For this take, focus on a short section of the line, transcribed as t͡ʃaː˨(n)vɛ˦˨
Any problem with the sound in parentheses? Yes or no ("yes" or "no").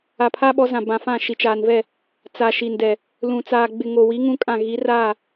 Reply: no